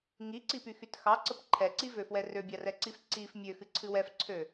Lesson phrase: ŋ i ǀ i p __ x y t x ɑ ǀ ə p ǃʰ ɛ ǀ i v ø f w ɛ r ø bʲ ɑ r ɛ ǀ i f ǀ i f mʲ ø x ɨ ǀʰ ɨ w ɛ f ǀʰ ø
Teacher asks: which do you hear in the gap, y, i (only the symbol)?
y